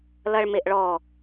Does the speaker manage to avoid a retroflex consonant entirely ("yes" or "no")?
no